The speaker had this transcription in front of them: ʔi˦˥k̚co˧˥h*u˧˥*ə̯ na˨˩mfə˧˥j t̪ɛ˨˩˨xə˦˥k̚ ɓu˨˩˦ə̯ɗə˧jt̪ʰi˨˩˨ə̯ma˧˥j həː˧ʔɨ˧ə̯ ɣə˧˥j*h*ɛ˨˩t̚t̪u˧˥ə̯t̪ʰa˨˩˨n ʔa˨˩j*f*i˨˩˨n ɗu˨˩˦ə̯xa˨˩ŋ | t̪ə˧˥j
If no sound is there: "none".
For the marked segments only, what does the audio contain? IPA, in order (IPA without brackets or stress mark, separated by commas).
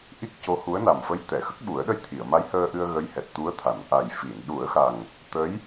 u˧˥, h, f